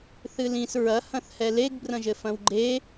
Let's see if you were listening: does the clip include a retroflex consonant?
no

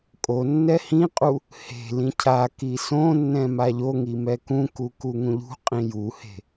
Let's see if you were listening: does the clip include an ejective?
yes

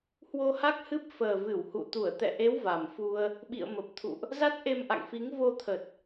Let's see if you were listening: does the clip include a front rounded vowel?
no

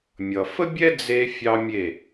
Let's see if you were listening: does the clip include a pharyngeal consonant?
no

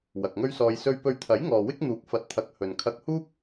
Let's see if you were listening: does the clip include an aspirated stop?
yes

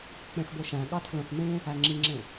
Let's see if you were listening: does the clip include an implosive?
yes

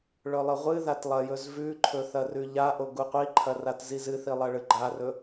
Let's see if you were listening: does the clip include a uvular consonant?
yes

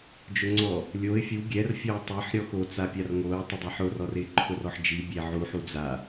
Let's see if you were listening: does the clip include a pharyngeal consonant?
yes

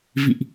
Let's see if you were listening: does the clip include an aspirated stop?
no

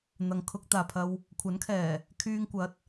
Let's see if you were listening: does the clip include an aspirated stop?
yes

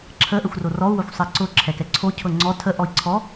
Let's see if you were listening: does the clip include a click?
yes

